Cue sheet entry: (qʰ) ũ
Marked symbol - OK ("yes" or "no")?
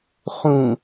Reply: no